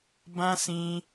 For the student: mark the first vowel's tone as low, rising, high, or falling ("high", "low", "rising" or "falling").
high